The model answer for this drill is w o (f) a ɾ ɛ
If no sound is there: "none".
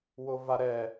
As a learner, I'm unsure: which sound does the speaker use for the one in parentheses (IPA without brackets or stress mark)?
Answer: v